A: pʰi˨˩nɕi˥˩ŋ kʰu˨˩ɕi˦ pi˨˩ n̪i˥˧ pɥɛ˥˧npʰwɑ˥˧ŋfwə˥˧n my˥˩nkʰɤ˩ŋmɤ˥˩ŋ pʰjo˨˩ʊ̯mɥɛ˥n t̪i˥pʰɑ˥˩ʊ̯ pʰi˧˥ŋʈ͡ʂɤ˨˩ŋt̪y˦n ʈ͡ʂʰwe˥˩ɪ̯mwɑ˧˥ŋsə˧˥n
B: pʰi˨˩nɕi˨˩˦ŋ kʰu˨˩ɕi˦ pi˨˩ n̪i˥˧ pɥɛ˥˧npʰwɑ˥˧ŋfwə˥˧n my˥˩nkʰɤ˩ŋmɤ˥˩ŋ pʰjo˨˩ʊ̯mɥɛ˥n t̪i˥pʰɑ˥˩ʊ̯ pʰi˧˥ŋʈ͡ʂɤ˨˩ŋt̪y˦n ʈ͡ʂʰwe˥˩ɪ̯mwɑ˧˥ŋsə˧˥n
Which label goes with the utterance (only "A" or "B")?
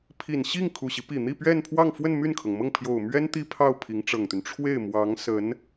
A